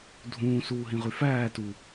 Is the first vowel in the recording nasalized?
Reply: yes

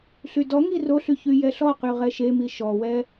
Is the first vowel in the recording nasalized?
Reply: no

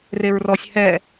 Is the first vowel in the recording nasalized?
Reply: no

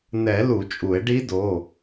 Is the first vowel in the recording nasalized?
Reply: no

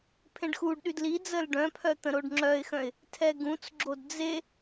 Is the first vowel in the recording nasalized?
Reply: yes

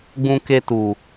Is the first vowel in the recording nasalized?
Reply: yes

